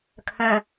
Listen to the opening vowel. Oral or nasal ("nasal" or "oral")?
nasal